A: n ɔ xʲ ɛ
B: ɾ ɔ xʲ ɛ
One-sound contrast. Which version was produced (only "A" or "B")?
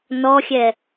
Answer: A